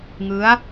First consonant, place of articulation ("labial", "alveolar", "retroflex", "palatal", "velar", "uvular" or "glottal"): velar